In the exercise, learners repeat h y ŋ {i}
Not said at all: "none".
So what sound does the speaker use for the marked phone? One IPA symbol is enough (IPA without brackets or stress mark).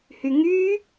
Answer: y